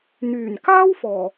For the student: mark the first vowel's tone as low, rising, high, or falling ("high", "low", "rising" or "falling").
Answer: low